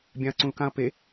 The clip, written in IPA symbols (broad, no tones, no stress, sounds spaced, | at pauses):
bʲ ã ɐ̯ ǀ ũ l k ã ɐ̯ p e